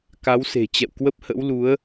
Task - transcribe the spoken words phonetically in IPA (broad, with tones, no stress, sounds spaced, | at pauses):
k a˨˦ w s e̤˨˩ t͡ɕ ɛ̰˧˨ w k w ə˦˥ p̚ h ə̰˧˥ w l u˨˦ ə̯